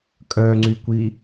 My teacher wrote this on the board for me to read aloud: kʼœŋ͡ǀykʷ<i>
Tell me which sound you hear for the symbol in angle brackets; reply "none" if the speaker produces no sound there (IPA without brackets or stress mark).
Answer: i